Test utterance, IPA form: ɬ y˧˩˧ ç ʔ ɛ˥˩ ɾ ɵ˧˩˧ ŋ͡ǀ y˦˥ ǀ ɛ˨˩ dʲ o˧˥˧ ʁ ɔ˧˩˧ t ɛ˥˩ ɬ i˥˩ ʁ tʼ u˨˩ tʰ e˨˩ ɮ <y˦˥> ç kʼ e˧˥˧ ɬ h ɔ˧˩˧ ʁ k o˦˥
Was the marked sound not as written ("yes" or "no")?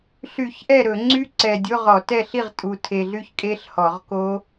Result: no